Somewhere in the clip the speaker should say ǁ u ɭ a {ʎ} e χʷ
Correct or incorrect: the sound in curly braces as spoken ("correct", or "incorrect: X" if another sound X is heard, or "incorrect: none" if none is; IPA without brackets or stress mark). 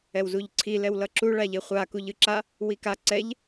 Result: correct